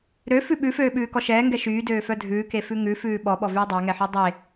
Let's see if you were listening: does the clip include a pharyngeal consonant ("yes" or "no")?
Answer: yes